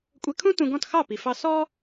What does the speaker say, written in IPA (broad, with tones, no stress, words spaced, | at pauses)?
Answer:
kʷʼɛ˧kʰũ˥ tũ˧ɡɔ̃˥˩t xɑ˥˩pi˩fɑ˧ sɔ˥